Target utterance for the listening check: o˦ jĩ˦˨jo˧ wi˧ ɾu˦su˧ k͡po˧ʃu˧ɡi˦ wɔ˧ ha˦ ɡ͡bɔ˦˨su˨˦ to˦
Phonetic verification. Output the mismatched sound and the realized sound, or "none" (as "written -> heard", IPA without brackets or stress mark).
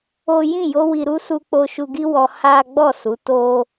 none